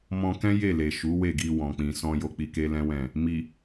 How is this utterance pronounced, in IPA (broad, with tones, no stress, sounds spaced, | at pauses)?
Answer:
m ɔ̃˧ k ɛ̃˦ j e˦˨ l e˨ ʃ u˨˦ w e˦˨ ɡ i˧ w ɔ̃˨ k͡p ĩ˨ s ɔ̃˧ j o˧ k͡p i˧ k e˦ l ɛ̃˦ w ɛ̃˦˨ | m i˨